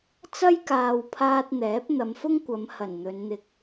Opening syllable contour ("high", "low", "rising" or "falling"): high